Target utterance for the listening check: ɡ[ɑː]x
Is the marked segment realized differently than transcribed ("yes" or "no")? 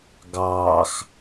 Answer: no